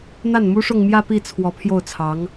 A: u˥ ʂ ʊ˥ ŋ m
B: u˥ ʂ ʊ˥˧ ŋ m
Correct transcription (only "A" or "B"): B